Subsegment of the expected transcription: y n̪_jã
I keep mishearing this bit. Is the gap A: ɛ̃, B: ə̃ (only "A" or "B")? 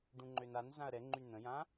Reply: B